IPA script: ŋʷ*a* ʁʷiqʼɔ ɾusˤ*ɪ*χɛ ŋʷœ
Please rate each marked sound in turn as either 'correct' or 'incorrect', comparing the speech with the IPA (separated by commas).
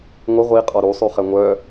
incorrect, incorrect